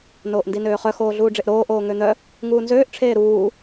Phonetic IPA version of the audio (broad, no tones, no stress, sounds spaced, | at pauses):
n oː ʔ n d i n øː χ œ x oː ɮ uː ɖ͡ʐ e ʔ ɾ oː ʔ oː ŋ ø n̪ œ | ŋ uː n z øː ʔ ʈ͡ʂʰ eː ɾ uː